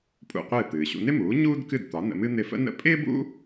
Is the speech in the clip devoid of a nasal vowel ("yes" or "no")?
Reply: yes